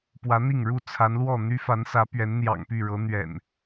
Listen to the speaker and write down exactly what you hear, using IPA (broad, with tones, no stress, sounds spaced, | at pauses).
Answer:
p w ä˨˦ n̪ i˥˨ ŋ ɻ u˥˨ t͡sʰ a˨˦ n l w ɔ˥˨ n̪ y˦ f a˨˦ n s ä˨˦ p ɥ ɛ˨˦ n n̪ j ɑ̰˨˩ ŋ p y˥˨ ɻ ɤ˨˦ n̪ ɥ ɛ̰˨˩ n